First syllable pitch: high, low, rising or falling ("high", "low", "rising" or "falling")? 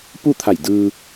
falling